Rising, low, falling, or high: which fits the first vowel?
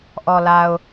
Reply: low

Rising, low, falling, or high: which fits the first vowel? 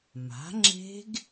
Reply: rising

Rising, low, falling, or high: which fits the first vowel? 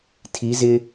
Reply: rising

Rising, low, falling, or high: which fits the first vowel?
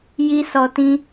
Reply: high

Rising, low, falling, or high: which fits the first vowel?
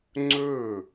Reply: falling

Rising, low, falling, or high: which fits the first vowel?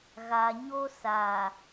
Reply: low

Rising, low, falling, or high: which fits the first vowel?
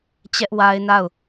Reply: high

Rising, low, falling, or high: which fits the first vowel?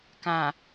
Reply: low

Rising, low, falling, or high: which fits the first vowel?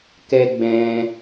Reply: high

